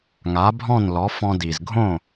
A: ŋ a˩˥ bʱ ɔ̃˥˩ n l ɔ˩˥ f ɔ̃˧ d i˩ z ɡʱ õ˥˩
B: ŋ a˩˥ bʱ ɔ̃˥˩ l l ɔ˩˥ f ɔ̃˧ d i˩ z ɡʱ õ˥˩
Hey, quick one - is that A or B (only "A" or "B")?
A